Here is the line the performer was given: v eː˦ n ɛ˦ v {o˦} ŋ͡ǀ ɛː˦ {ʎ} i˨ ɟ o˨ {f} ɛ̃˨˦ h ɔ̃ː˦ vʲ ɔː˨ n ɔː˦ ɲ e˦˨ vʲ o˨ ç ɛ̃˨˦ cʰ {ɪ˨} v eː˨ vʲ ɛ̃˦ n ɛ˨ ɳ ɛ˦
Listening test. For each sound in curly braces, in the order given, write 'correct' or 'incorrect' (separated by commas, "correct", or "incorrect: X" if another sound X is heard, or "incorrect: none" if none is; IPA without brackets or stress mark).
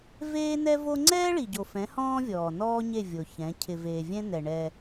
correct, incorrect: ɭ, correct, correct